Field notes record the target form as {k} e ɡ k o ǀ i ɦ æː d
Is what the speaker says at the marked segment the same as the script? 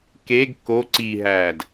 yes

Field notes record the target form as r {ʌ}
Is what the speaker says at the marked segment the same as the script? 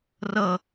yes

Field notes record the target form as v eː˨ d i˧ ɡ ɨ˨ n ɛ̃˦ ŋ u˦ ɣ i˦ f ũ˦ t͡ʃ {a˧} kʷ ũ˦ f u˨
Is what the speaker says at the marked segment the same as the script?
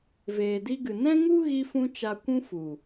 yes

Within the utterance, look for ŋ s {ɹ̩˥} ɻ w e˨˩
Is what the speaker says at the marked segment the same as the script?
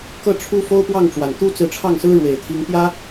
yes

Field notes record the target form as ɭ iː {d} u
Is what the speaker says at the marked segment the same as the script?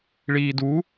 yes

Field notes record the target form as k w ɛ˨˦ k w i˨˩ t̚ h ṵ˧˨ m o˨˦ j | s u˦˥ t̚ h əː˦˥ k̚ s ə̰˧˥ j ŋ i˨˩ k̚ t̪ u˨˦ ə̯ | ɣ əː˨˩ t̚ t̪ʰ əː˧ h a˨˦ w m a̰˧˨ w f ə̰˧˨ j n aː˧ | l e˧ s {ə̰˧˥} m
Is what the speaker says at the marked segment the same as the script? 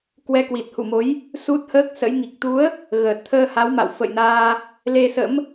yes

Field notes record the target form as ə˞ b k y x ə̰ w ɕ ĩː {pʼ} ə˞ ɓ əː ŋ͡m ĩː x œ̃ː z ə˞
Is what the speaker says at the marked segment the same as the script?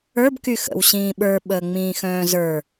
no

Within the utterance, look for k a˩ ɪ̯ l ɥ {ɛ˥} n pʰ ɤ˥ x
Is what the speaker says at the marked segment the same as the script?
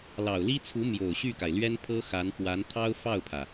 yes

